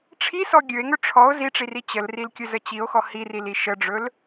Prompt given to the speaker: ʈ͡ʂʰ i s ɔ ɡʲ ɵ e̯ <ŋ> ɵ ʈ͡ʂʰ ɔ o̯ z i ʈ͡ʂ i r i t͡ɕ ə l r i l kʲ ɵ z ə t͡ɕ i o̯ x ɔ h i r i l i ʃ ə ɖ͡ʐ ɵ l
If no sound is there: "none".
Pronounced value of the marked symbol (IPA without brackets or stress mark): ŋ